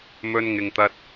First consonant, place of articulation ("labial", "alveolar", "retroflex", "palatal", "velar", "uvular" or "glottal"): labial